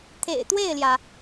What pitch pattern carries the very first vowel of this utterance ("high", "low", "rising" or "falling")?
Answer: low